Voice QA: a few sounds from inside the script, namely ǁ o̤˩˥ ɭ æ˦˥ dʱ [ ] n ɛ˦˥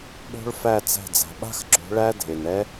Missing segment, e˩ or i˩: e˩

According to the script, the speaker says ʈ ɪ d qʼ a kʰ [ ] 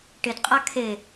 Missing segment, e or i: e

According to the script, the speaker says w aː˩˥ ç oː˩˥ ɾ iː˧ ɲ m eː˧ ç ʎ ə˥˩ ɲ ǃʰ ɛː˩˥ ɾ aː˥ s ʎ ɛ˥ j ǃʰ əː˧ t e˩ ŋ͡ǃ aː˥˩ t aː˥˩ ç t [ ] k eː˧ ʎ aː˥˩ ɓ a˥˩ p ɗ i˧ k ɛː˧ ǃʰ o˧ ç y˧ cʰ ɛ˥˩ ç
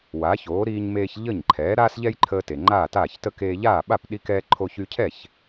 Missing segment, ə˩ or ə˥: ə˥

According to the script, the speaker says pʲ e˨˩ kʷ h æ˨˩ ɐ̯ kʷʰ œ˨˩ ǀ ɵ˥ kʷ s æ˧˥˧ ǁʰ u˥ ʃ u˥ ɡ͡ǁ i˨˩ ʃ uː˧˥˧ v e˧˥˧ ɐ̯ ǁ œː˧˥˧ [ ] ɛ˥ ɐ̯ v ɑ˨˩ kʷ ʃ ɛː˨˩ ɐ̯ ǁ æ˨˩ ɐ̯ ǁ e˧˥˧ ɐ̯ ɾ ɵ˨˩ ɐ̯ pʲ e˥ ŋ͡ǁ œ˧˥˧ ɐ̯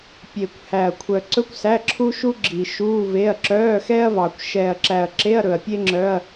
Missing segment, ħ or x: x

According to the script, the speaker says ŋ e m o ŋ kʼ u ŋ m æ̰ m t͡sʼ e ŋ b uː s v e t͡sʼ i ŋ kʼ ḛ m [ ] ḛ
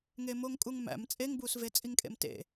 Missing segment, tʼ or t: t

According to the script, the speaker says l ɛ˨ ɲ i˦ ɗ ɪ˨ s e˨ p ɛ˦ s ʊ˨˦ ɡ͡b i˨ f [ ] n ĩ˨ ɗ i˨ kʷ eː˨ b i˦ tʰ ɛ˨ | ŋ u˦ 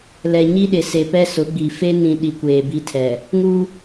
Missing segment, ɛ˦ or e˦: e˦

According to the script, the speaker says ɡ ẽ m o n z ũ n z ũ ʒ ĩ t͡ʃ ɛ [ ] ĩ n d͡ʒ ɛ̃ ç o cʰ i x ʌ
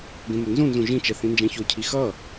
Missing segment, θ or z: θ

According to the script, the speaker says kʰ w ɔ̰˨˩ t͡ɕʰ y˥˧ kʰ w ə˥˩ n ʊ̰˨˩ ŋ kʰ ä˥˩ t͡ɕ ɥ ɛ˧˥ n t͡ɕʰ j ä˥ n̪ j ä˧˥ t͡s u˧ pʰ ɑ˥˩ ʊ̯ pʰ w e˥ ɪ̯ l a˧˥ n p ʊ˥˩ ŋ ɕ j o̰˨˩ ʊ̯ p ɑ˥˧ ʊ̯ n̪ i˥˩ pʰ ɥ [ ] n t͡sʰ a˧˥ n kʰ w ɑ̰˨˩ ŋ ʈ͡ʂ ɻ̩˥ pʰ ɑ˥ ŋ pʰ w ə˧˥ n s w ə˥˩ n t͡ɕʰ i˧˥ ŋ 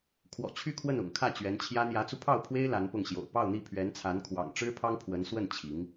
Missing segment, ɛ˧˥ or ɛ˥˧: ɛ˧˥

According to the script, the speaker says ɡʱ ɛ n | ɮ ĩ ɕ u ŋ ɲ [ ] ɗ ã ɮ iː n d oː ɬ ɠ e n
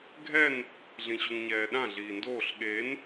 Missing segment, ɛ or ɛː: ɛː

